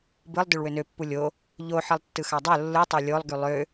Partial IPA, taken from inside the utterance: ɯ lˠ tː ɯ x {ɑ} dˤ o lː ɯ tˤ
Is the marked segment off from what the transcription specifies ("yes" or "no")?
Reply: no